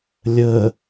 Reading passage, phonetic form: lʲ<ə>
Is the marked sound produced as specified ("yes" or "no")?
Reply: yes